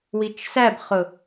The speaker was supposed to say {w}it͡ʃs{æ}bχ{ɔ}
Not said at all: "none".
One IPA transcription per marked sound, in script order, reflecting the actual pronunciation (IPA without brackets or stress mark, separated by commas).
w, æ, ʊ